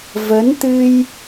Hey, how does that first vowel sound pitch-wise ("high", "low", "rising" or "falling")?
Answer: rising